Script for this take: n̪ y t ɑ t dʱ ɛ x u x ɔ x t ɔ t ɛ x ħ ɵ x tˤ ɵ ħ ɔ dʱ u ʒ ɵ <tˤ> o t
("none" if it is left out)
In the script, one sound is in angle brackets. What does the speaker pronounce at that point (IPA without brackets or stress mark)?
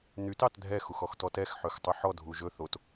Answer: θ